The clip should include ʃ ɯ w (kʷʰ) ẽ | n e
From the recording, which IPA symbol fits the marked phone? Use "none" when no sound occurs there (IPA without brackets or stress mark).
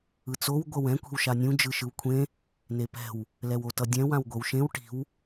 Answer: kʷʰ